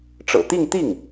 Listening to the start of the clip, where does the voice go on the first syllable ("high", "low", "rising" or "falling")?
low